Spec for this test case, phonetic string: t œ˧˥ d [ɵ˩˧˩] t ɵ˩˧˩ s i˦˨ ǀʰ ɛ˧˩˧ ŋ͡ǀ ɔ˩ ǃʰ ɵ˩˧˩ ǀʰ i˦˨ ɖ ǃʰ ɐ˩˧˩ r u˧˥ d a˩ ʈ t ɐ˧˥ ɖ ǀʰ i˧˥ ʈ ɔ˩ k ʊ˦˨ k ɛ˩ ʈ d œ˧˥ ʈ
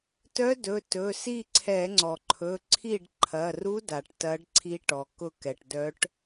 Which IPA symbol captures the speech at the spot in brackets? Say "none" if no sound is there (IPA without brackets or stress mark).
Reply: ɵ˩˧˩